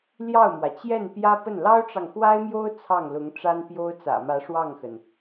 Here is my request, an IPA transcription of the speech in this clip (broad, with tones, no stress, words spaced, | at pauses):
ljɑ˥˩ʊ̯mwä˩ t͡ɕjɛ˥˩npjä˥ pə˥˩n lɑ˥ʊ̯ʈ͡ʂɑ˨ŋxwa˥ɪ̯mjo˥ʊ̯ t͡sʰɑ˥˩ŋlʊ˧˥ŋʈ͡ʂa˥npjo˥ʊ̯ t͡sä̰˨˩mä˧˥ ʂwɑ˥˩ŋxə˩n